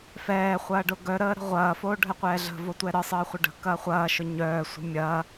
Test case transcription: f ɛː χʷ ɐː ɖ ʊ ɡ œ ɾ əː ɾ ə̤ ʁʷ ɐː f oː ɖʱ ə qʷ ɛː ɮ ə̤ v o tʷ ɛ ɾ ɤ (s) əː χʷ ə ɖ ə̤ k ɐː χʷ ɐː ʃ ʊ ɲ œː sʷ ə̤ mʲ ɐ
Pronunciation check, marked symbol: incorrect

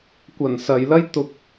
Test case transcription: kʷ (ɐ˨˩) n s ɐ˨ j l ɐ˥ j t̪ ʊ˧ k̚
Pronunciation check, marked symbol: correct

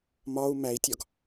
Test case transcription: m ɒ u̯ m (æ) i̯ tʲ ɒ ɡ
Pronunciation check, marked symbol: correct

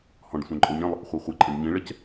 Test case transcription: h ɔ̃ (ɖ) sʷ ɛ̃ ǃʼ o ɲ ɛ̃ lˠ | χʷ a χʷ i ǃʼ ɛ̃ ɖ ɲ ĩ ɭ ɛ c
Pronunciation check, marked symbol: correct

